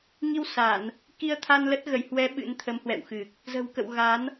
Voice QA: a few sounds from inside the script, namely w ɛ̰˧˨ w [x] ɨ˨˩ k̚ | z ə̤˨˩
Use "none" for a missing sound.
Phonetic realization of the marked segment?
x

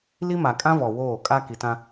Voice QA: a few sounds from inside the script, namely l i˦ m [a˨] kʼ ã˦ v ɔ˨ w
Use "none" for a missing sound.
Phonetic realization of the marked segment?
a˨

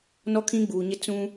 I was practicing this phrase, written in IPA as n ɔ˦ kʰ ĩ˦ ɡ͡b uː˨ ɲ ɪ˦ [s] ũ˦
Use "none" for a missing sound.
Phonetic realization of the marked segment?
t͡s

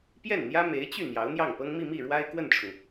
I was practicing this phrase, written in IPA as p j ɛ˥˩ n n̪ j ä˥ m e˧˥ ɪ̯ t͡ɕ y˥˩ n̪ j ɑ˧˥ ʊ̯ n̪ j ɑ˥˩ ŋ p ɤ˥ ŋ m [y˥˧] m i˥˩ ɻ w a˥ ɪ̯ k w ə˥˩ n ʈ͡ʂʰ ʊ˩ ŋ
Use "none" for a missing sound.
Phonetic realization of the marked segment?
i˥˧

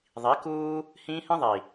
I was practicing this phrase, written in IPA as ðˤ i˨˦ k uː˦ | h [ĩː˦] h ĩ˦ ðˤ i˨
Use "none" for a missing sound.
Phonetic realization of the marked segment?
ĩː˦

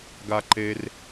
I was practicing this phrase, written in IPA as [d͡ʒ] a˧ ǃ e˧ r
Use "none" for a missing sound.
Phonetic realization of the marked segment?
ɡ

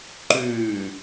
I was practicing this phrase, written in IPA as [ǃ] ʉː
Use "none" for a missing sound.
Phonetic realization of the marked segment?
ǃ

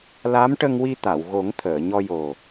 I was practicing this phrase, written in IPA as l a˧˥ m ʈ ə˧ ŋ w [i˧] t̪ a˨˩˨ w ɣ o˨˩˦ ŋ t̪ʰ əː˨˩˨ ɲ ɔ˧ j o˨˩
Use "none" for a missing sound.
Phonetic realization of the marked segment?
i˧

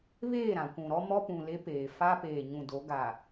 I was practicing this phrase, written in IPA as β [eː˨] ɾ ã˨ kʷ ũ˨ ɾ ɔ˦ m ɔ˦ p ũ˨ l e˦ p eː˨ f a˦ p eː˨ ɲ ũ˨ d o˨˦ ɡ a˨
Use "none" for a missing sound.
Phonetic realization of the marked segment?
eː˦˨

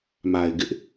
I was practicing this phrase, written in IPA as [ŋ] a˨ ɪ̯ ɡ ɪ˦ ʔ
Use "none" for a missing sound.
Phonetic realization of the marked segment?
m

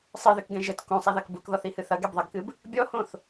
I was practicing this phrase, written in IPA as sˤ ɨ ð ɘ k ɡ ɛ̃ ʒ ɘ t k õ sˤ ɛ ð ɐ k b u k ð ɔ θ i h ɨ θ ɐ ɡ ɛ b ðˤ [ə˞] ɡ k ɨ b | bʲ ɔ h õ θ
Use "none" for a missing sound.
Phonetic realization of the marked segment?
ɐ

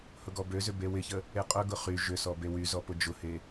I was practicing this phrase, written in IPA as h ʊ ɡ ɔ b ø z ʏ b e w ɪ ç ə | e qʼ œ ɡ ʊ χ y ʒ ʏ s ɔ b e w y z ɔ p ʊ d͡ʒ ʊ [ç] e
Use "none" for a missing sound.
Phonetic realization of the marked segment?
h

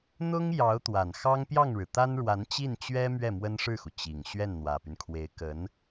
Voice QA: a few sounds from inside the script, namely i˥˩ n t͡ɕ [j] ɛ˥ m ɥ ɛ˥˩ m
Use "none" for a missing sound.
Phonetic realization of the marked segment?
ɥ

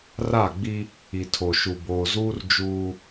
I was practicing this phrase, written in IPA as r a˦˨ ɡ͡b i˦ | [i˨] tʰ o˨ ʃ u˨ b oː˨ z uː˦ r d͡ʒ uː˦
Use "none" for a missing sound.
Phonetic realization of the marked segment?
i˨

